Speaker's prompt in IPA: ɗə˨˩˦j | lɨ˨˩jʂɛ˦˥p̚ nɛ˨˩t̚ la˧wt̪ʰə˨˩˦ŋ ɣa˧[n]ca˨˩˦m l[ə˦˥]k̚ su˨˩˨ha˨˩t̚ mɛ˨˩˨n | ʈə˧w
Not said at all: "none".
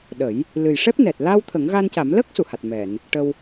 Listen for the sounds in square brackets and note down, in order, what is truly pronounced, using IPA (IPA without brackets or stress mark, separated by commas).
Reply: n, ə˦˥